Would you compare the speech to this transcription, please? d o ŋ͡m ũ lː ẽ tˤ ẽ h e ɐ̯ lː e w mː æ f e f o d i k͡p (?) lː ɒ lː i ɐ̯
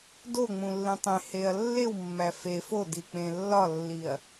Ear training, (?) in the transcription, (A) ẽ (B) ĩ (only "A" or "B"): A